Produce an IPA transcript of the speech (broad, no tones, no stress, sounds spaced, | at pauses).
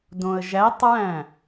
d õ ə̯ ʒ æ tˤ ɹ æ̃